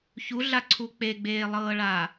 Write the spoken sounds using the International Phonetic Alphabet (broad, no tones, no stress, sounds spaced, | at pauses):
ç u ɮ a ǀʰ u k͡p e ɡ͡b eː lˠ ɤː ɭ a